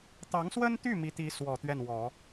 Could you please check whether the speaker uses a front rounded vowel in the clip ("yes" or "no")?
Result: yes